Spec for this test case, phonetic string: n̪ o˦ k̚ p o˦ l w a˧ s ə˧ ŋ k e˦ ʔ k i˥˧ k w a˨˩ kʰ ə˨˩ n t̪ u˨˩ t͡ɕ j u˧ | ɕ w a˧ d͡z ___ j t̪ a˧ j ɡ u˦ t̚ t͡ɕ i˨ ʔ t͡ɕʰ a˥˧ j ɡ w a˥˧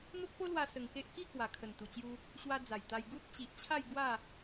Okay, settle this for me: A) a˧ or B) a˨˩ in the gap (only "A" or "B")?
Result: B